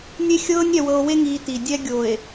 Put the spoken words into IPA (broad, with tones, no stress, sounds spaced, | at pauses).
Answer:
nʲ e˦ xʲ ɤː˦ nʲ ɾʲ a˨ w ɤ˨ o̯ w e˦ ŋ iː˨ t i˨ dʲ ɛ˦ ɡʲ o˨ e̯